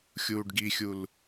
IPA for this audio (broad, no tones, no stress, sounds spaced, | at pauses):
xʲ uː ɖ ɡ i xʲ u l